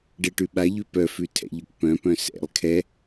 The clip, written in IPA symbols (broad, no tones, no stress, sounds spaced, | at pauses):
ɖ ɘ ʈ ʉ ɓ a ʎ ʉ p œ f ʉ tʰ ɛ̰ ʎ ʊ k p œ̃ p œ̃ s ɛ̰ lˠ kʰ ɛ